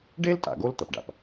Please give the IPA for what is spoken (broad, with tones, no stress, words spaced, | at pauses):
ɖe˥l tʼa̰˩ɡo˥l t̪ɐ˩pɖa̰˩p